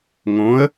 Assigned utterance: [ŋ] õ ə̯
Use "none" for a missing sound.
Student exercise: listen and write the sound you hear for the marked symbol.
ŋ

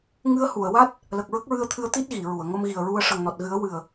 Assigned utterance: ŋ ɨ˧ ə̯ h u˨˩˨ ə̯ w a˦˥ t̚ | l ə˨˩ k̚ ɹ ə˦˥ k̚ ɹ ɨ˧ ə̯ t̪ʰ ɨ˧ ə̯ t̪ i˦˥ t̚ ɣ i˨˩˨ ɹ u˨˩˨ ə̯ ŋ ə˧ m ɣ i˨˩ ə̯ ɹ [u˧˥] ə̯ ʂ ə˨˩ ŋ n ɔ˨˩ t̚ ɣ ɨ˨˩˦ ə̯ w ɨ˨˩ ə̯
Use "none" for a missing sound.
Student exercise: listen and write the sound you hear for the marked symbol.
u˧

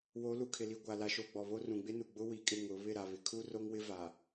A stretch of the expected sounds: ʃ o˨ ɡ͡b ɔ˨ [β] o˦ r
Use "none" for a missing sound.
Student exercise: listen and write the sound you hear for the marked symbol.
β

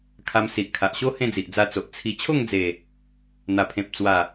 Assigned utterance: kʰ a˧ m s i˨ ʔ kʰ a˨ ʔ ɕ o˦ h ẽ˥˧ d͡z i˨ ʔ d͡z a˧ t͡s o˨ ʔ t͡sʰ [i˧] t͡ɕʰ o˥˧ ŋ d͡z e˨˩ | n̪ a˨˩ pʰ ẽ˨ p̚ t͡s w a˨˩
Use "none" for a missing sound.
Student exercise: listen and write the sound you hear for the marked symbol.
i˧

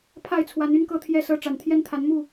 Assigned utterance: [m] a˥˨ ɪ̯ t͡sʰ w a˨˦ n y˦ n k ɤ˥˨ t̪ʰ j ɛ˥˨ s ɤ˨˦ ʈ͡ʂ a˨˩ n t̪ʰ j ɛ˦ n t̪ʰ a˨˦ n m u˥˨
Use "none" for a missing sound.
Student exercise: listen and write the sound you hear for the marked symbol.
pʰ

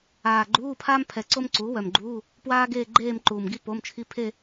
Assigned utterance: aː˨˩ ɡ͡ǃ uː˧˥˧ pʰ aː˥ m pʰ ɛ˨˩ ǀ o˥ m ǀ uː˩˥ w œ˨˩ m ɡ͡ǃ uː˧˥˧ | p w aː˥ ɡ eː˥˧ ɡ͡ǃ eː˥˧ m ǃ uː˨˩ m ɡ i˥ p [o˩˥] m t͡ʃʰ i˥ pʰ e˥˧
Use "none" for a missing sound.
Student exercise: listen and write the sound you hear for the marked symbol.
o˧˥˧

